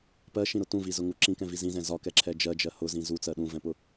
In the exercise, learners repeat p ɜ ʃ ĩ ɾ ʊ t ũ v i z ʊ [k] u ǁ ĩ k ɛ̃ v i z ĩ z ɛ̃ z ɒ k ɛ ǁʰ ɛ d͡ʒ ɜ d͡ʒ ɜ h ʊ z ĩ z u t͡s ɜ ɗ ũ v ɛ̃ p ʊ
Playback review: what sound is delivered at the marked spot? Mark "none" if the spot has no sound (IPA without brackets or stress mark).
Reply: ŋ